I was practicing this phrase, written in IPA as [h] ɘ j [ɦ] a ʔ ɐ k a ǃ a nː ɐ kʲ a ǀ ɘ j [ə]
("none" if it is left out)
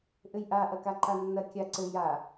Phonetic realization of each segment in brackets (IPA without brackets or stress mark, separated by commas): ʔ, ʔ, a